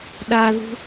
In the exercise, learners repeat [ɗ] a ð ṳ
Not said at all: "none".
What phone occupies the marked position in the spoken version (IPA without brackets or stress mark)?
ɗ